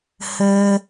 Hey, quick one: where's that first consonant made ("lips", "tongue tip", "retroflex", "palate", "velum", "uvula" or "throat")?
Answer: throat